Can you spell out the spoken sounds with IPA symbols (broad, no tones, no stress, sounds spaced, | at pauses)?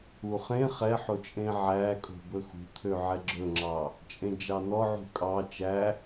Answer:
u χ ẽ χ ɛ ħ o t͡ʃʼ ẽ ʕ æ kʼ o̤ b ɵ x ṳ t̪ʰ ø ʕ ɛ ɡ͡ǁ ɵ ŋ͡ǁ ɑ | t͡ʃʼ ẽ d͡ʒ ɑ n ɔ ʕ ṳ kʼ ɑ t͡ʃ æ